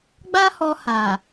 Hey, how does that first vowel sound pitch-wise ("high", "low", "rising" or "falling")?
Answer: high